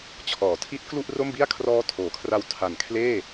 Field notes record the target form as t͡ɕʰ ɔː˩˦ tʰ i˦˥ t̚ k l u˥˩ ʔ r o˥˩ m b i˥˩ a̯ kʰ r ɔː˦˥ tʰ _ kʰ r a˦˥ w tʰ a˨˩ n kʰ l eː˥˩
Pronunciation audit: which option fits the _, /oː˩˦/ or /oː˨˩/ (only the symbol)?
oː˩˦